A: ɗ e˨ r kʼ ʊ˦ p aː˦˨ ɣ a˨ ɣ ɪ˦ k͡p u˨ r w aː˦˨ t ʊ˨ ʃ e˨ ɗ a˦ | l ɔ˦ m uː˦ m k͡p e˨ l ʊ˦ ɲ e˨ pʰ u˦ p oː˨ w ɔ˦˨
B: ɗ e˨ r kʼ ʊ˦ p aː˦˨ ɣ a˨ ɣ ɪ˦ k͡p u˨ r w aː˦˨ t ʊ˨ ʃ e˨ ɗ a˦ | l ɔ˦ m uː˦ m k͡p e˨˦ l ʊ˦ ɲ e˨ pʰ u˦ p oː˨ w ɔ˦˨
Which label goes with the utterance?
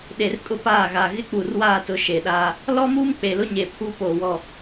A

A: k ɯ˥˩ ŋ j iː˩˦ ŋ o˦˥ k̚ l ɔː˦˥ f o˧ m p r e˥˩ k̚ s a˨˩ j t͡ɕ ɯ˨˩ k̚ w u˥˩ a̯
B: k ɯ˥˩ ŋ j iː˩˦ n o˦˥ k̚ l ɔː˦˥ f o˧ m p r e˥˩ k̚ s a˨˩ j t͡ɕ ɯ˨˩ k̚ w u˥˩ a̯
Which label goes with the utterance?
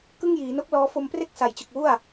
B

